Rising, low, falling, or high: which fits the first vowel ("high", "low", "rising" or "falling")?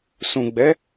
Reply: low